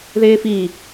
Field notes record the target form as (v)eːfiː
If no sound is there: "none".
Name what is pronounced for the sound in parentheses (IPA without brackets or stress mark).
ð